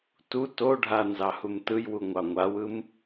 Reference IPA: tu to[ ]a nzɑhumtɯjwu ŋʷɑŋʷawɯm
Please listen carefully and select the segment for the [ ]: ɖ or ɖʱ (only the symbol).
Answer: ɖʱ